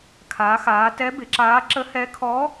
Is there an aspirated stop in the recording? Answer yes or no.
yes